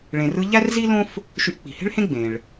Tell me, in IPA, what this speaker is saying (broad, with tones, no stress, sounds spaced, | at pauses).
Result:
ɭ ẽ˩ r ɯ˧ ʎ æ˥ r z i˥ l õ˥ f | ʃ y˧ ʔ k͡p i̤˩ h e̤˥ ɭ h ẽ˥ ɡ͡b ẽ˩ ɭ